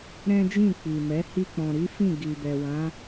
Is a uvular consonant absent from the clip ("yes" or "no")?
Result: yes